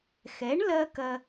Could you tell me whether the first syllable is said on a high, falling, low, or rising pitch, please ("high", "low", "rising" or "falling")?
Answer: rising